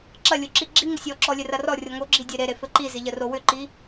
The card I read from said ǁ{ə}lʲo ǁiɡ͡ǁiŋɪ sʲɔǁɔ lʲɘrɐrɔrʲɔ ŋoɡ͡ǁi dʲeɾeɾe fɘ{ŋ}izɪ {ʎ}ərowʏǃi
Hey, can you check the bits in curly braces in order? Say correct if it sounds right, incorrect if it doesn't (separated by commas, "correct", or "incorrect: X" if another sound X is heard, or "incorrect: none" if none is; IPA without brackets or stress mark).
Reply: incorrect: ɐ, incorrect: ǃ, correct